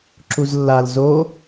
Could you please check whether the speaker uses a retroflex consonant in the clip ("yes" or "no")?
no